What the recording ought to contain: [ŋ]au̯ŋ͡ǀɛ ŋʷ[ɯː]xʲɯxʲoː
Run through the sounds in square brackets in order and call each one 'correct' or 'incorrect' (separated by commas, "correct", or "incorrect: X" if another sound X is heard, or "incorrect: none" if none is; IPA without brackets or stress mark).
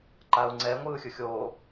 incorrect: ǃ, correct